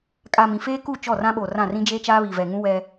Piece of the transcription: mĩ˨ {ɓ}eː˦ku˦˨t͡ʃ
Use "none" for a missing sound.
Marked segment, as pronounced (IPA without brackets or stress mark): f